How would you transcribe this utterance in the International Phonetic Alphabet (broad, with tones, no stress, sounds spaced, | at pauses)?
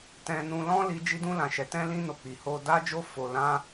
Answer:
t ɛ̃˧ n ũ˧ l ɔ̃˦ l i˧ d͡ʒ i˦ d ũ˦ l ã˧ ʃ ɛ˧ t ɛ̃˦ l ĩ˦ n o˧ k͡p i˨ h o˧ d a˦ d͡ʒ o˦ f o˧ l ã˦